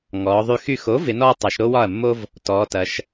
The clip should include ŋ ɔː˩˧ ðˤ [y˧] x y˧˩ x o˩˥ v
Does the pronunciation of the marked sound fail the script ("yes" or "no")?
no